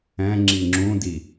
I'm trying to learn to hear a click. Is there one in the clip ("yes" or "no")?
yes